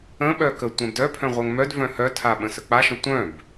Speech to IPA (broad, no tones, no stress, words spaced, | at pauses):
ə̃ɓœ kə tʷɛ̃bdœpʰœ̃ ʁʷœŋmœdvœ̃ hœtʰaɓə̃ sək͡paʃə̃ tʷœ̃b